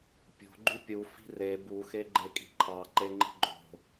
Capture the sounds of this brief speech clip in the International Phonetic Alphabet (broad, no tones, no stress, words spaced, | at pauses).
pʲo̤ ɡ͡ǃypʲu fi̤re buxe ɡ͡ǃekʼi̤ǃʰɑǃe ŋ͡ǃi̤ɡ͡ǃo̤